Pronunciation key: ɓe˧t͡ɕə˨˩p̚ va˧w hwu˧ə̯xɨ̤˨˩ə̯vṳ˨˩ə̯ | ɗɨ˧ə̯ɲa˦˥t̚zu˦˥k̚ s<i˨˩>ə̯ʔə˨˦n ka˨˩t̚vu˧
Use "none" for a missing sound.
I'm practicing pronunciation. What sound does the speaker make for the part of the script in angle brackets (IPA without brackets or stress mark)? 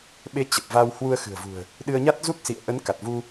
ḭ˧˨